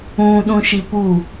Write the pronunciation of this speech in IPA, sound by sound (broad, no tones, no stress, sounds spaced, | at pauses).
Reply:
ũ ɗ ũ ʃ i p u